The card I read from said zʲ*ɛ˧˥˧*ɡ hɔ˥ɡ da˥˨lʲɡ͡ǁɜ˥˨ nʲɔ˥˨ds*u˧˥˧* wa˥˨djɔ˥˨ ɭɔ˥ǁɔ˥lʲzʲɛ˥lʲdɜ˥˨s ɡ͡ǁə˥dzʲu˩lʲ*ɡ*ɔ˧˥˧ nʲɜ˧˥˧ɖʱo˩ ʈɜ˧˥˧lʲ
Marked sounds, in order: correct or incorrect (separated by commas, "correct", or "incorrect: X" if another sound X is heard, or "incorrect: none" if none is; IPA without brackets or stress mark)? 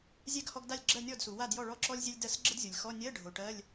incorrect: ɛ˥, incorrect: u˩, incorrect: x